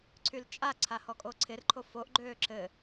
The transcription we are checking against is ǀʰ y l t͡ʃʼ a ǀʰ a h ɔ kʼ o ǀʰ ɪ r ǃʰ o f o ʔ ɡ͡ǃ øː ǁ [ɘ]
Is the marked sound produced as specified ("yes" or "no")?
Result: yes